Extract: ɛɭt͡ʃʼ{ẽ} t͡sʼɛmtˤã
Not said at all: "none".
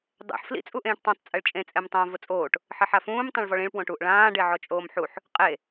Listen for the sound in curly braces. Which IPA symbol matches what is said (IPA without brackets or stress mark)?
ẽ